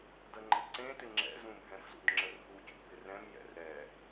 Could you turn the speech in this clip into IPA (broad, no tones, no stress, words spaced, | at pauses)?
dəŋ͡ǃə̰dǀẽtɪ ŋ͡ǁɛ̰zũbʱɛ̃fzṵd ŋ͡ǁərɦucṵ bɪrɛ̃mjɛ̰r ɾɛ